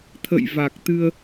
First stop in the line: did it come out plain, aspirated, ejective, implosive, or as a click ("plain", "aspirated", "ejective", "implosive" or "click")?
aspirated